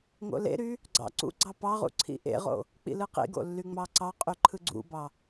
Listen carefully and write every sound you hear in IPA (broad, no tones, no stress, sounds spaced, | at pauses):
ŋ o̰ l ḛ ɾ y | ɡ͡ǀ ɑ̰ ǀ ṵ ɡ͡ǀ ɑ p ɑ ʁ ṵ ǀʰ ḭ ʔ ḛ ʁ o̰ | k͡p ḭ l ɯ q ḭ ɡ o̰ lː y ŋ͡m ɑ ǀ ɑ qʼ y ǃʰ ɯ ɡ͡ǀ ṵ b ɑ